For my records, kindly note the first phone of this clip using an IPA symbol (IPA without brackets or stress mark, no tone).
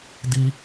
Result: d